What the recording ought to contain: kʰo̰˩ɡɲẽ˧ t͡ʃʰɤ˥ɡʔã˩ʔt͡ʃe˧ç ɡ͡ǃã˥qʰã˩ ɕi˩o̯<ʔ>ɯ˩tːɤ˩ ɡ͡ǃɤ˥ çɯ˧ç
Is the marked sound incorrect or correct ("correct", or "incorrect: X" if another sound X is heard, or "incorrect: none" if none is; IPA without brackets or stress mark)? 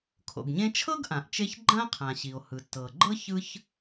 incorrect: h